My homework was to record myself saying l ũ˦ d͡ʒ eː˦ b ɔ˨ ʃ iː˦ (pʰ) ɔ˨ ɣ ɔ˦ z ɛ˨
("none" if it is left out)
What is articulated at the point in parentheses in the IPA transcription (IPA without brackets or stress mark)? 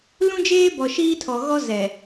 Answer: tʰ